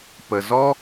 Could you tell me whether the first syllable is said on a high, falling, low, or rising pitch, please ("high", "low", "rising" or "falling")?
low